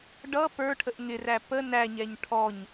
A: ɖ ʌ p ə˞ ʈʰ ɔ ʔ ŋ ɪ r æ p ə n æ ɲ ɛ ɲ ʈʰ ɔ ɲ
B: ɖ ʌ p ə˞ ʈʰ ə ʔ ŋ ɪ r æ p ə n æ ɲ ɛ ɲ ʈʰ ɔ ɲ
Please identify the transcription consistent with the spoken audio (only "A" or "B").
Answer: B